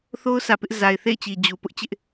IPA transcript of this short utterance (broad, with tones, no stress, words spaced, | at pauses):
θo˦ʊ̯sä˨ pɪ˦ʔ za˨ɪ̯θḛ˦˨ɪ̯t͡ɕi˨ d͡ʑu˨ pʊ˦ʔt͡ɕɪ˦ʔ